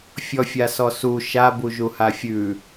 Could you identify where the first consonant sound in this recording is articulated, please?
labial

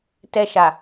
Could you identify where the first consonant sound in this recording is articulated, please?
alveolar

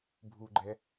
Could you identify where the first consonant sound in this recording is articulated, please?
labial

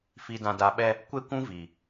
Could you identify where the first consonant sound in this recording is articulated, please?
labial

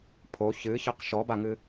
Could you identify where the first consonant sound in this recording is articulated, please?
labial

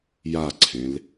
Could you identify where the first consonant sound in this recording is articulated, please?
palatal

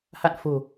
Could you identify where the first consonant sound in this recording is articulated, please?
glottal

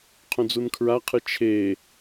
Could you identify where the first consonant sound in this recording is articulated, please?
uvular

